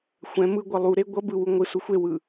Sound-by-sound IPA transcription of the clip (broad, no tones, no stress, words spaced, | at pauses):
xʷɛ̃ mɯɡʷʌ lˠuɾe ɡʷʌ bɯwu ŋʷɯsu xʷewɯ